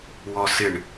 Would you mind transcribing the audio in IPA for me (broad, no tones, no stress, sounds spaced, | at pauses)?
w ɔ s ɪ ɳ